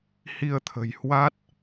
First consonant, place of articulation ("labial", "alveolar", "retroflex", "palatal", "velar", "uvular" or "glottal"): glottal